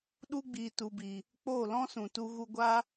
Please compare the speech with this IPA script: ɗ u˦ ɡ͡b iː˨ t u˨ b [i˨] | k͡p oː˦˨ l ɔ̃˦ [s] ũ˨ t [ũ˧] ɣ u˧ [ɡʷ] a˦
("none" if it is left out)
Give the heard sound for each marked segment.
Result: i˨, s, u˧, ɡʷ

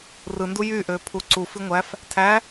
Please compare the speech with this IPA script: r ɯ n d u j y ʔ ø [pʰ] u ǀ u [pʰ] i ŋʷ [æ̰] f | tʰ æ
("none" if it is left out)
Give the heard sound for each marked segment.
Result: pʰ, f, æ

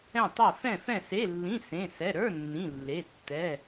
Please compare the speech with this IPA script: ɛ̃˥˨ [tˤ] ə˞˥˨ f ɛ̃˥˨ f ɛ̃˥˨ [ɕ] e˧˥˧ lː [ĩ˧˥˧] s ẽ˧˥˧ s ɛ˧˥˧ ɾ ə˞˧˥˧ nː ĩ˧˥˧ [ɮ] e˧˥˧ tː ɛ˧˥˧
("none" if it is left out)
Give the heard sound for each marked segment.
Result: tˤ, s, ĩ˧˥˧, lː

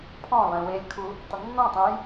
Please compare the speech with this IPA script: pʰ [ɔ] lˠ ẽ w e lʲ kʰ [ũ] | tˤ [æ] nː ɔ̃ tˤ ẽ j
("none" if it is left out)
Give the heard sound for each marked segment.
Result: ɔ̃, u, ə

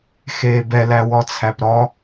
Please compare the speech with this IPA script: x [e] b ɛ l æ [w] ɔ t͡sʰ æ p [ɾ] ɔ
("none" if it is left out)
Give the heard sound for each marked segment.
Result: eː, w, ɾ

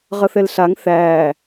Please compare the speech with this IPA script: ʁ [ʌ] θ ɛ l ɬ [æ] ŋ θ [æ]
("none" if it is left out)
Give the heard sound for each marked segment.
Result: ʌ, a, æ

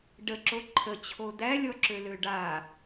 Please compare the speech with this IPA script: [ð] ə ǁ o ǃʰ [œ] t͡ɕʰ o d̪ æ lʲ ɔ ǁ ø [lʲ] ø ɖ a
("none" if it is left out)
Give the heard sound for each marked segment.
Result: ɖ, ə, l

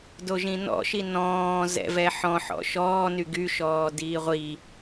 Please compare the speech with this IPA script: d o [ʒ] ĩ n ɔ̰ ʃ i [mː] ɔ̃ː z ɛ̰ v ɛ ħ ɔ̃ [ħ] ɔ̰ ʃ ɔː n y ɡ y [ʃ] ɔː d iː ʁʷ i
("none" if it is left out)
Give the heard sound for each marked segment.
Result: ʒ, n, ħ, ʃ

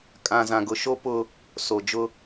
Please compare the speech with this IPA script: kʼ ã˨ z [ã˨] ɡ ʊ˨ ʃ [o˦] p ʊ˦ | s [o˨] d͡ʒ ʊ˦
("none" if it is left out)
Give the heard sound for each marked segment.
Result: ã˨, o˦, o˨

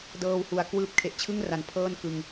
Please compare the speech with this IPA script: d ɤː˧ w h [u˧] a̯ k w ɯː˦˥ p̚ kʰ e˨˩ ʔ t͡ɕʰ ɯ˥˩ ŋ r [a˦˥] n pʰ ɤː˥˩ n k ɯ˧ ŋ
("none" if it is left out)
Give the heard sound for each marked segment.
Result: u˨˩, a˩˦

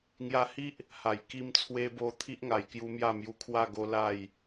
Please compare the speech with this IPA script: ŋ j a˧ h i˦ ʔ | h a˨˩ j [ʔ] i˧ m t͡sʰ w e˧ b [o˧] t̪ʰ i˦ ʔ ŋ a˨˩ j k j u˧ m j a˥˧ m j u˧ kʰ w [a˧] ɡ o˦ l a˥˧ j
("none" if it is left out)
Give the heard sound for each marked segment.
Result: k, o˧, a˥˧

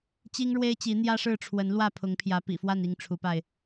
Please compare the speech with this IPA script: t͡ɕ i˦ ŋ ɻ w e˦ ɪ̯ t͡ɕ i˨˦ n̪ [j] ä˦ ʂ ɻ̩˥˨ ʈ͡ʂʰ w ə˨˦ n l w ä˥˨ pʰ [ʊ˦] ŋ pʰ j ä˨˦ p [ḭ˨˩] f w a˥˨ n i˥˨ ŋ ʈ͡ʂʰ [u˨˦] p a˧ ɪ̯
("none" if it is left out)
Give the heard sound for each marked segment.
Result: j, ʊ˨˦, ḭ˨˩, u˨˦

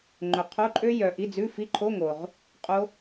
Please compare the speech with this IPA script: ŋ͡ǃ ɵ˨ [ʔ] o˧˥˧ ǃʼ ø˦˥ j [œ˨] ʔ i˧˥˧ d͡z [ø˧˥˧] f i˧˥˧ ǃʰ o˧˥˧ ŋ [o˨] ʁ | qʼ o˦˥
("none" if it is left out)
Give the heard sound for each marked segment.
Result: qʰ, œ˨, ʉ˧˥˧, o˨

